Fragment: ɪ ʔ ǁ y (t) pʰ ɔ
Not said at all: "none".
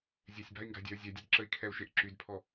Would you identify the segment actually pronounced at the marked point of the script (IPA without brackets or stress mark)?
d